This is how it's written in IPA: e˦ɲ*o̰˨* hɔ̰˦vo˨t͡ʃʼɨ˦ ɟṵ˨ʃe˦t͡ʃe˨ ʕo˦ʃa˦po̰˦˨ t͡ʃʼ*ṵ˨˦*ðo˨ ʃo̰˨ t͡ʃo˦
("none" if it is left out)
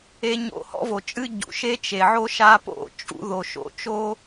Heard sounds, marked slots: o̰˦, ṵ˨˦

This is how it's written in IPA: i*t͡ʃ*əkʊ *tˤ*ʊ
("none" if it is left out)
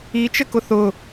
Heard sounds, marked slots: t͡ʃ, θ

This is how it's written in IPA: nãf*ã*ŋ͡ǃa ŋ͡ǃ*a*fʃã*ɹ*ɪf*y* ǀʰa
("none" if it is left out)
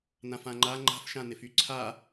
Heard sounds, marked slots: ã, a̤, n, y

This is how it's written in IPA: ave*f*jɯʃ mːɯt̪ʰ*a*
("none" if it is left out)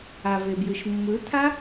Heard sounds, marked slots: b, a

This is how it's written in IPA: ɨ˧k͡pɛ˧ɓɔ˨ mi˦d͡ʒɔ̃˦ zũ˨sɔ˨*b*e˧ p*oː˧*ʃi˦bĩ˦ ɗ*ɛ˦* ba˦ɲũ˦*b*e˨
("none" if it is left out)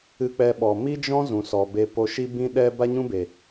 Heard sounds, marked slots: b, o˧, ɛ˦, b

